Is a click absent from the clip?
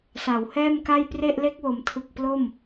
yes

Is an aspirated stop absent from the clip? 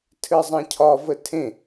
no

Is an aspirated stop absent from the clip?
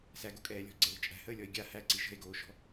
yes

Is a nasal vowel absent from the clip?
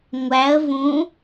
no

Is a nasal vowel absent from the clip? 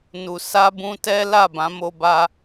no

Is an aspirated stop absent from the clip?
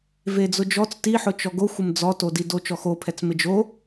no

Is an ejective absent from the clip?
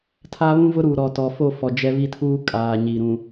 no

